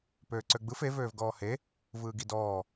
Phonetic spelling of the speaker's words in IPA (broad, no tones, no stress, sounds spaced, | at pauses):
p øː ǀ ø ɡ͡b ɯ f e v øː v ɡ ɔː h e | v ɯː ɡ i d ɔː